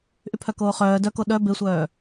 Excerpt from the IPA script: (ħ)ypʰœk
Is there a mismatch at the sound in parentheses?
yes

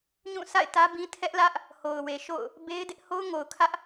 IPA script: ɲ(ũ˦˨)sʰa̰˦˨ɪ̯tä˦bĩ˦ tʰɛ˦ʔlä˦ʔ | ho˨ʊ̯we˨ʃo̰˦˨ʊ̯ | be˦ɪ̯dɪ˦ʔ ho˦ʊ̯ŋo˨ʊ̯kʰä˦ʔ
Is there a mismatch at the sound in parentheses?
no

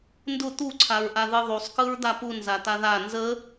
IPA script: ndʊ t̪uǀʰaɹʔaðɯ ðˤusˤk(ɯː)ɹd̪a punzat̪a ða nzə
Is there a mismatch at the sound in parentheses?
yes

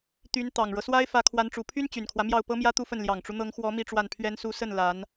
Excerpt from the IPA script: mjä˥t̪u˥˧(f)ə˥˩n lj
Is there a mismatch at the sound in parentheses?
no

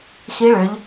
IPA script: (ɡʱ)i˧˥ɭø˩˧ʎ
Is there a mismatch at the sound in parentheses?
yes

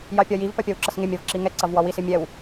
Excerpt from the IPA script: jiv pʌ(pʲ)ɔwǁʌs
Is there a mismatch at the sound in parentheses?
no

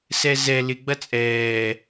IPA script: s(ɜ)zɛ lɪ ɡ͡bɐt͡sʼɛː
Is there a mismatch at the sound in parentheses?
yes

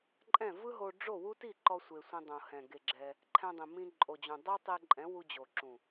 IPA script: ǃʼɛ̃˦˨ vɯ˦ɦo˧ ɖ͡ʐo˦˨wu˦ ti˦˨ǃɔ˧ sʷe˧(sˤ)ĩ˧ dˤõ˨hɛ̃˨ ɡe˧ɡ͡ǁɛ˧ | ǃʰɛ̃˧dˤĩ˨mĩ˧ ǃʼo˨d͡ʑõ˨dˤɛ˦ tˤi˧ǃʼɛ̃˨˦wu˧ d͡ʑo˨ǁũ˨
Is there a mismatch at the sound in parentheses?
yes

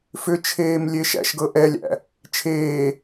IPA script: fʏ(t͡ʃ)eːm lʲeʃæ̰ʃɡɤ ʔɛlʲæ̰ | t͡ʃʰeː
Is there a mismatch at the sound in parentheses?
yes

